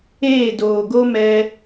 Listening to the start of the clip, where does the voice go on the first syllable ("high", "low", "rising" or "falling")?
falling